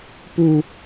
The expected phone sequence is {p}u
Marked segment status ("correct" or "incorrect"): correct